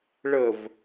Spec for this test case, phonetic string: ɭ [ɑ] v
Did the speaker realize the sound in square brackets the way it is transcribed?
no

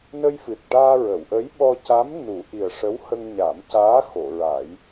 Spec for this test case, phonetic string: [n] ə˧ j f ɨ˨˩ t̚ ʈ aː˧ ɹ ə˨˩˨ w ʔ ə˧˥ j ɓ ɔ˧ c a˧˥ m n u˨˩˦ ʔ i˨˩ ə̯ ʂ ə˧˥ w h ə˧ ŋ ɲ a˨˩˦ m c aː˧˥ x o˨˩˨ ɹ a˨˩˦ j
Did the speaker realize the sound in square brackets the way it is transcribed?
yes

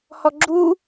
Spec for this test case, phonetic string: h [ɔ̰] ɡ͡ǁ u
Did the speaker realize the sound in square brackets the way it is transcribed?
no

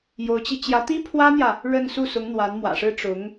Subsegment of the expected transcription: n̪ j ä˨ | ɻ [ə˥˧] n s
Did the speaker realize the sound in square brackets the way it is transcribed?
yes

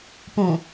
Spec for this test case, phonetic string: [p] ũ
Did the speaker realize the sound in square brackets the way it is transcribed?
yes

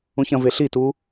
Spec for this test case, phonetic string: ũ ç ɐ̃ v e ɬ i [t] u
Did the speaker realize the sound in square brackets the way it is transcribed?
yes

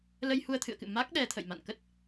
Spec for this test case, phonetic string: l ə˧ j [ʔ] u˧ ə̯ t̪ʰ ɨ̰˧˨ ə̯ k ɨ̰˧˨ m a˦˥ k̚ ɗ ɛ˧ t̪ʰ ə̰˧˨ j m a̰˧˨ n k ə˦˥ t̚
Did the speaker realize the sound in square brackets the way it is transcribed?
no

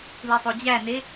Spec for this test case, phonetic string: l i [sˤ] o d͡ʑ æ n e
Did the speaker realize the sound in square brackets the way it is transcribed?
yes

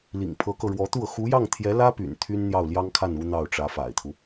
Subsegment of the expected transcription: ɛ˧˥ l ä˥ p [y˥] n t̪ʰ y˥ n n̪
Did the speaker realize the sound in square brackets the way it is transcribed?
no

